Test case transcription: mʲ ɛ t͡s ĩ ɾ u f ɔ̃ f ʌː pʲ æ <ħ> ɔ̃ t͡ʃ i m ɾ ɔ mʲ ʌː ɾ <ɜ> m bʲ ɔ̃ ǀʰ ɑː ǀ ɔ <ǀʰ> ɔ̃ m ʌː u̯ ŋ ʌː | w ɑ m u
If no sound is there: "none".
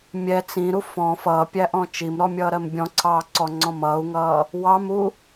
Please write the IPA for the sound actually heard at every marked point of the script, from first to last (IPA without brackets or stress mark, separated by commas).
ʔ, ɜ, ŋ͡ǀ